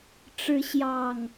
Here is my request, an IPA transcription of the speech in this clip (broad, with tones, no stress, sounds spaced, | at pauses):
ʈ͡ʂ ɻ̩˨˦ ɕ j ɑ˨˩ ŋ